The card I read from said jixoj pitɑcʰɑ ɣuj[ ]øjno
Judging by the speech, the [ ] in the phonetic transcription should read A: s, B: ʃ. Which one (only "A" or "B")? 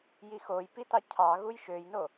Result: B